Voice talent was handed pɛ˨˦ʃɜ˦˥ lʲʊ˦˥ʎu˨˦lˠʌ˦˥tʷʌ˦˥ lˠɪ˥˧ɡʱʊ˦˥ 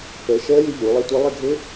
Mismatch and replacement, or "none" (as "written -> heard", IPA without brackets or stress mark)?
none